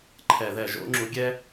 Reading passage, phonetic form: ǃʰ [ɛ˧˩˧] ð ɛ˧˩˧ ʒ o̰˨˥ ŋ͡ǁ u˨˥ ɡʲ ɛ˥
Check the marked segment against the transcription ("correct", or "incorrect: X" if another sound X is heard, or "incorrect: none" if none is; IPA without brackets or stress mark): correct